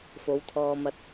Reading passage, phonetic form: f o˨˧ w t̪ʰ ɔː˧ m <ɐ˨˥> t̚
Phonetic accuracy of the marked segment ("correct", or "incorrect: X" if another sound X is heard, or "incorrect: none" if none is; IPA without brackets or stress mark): incorrect: ɐ˧